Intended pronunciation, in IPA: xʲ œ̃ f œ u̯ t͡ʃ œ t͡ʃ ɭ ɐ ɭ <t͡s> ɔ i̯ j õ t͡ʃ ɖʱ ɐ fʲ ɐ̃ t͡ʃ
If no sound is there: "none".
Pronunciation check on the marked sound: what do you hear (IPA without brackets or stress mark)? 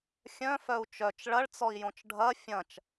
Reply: t͡s